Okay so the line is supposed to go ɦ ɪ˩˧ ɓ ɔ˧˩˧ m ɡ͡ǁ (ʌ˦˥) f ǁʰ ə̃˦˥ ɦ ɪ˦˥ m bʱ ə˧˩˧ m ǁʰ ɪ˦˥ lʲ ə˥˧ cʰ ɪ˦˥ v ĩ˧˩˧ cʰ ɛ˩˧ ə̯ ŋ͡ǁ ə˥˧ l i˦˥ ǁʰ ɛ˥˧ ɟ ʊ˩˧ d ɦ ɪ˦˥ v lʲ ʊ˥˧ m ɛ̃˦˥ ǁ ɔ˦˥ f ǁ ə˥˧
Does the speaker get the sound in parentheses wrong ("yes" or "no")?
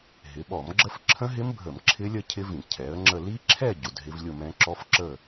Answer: yes